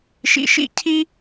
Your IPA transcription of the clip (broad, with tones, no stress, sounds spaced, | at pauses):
ʃ ḭ˦ ʃ ḭ˥ cʰ i˥